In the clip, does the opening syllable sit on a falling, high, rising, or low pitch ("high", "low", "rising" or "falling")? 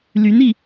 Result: rising